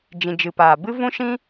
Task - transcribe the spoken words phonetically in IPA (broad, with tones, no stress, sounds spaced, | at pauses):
d͡ʒ ĩ˨ d͡ʒ ɨ˨ p aː˨ b ɨ˦ v ũ˦ ʃ ĩ˦